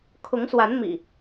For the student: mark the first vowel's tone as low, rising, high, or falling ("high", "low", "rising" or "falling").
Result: rising